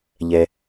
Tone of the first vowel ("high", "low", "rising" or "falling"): low